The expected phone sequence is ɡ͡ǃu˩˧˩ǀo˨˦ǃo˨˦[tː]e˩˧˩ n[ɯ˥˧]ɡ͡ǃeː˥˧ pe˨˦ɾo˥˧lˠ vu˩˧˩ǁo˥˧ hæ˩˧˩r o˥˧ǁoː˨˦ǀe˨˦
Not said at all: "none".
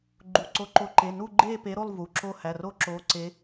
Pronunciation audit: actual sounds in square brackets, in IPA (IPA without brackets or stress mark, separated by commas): ǃ, u˥˧